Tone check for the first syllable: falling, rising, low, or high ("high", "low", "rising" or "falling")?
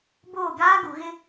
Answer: falling